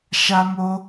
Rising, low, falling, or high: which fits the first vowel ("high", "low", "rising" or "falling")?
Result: high